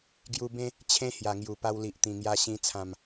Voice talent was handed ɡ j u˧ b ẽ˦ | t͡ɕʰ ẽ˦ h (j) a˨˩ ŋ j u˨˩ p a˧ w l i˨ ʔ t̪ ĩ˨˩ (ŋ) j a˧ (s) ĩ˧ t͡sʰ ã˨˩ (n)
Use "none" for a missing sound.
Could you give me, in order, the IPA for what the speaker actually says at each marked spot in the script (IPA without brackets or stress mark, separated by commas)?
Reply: j, ŋ, ɕ, m